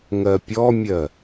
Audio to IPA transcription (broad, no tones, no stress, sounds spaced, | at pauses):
ŋ ɜ pʲ ɔ mʲ ɜ